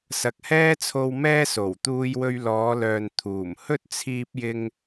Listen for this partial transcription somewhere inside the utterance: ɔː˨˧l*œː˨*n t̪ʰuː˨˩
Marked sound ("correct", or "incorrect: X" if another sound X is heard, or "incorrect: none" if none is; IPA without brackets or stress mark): correct